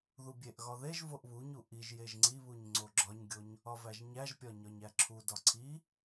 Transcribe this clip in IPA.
ð u bʲ e ʔ ɣ ɒ ð e ʒ v o ʔ β u ɲ u ʔ i ʒ j e ʒ ŋ͡ǀ i β u ɲ ŋ͡ǀ o ɡ͡ǁ ɒ ɲ ɡʲ o ɲ | ɒ v æ ʒ ɲ æ ʒ pʲ ɒ ɲ ɒ ɲ æ ǁʰ u d ɒ ǀʰ i

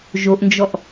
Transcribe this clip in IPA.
ʒ o ʔ n d͡ʒ ɔ ʔ

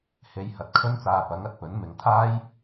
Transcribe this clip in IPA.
h e˧ j h ɐ˨˥ t̚ kʰ ɵ˥ n t͡s aː˧ p ɐ˨˥ ŋ ɐ˧ t̚ p ɵ˨˥ n m ɪ˨˧ ŋ t̪ʰ aː˥ j

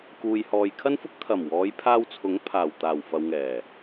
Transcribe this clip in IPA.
k uː˨ j h ɔː˨ j kʰ ɐ˥ n f ʊ˥ k̚ t̪ʰ ɐ˨˩ m w ɔː˨˧ j pʰ aː˧ w t͡sʰ ʊ˨˥ ŋ pʰ aː˨˩ w t̪ aː˨˩ w f ɐ˨ w ŋ ɛː˨˩

